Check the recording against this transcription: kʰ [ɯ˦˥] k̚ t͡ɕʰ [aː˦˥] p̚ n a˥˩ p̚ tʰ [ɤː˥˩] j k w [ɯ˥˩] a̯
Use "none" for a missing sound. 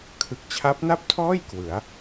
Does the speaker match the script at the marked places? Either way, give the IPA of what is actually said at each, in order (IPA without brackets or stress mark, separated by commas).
ɯ˨˩, a˦˥, ɔː˥˩, ɯ˩˦